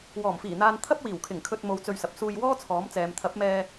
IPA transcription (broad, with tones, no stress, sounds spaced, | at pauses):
w ɔː˨˩ m f iː˨˩ n̪ aː˨ n t̪ʰ ɐ˥ p̚ w iː˨˩ w kʰ ɪ˨˩ ŋ kʰ ɵ˨ t̚ m o˧ w t͡s ɵ˧ ɥ s ɐ˨ p̚ s uː˧ j w ɔː˥ t͡sʰ ɔː˨˥ m t͡s ɛː˨ m t̪ʰ ɐ˨˥ p̚ m ɛː˧